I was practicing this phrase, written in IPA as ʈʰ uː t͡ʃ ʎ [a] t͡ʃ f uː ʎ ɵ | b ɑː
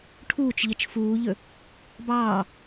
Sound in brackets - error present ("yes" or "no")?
yes